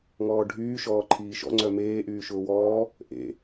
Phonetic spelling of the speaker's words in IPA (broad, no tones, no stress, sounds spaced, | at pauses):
ŋ ɔː ɖʱ yː ʃ ɔː ǃʰ iː ʃ ɔ̰ ŋ͡ǀ œ m eː ʔ yː ʃ ʊː w ɔː | ʔ ḛ